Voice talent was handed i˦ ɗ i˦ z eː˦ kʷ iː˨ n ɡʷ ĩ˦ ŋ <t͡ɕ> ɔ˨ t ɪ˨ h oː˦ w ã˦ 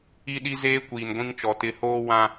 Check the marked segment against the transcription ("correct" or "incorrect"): incorrect